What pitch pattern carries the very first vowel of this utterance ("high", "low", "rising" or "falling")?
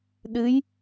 rising